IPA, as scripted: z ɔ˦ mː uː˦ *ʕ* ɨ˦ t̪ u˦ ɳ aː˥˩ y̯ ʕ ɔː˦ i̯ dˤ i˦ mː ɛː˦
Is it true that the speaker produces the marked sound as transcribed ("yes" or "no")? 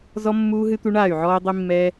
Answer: no